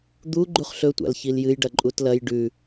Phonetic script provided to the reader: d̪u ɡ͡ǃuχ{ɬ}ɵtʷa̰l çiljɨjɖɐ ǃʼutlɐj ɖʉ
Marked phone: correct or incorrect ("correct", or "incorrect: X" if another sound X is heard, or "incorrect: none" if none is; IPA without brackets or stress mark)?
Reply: correct